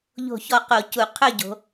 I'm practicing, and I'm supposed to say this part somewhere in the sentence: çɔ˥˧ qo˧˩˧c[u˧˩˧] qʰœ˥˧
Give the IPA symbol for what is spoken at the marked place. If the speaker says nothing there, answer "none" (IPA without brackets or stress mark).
u˧˩˧